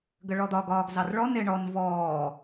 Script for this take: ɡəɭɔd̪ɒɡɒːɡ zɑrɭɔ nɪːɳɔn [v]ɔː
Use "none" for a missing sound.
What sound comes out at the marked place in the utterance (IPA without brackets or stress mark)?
v